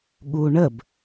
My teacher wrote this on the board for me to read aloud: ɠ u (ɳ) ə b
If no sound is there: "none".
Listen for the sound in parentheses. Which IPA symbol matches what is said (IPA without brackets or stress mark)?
ɳ